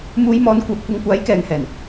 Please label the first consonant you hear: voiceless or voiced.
voiced